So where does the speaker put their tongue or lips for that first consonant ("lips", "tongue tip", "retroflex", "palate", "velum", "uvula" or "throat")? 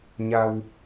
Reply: palate